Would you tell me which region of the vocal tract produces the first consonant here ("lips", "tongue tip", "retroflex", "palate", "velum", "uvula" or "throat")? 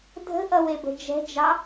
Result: tongue tip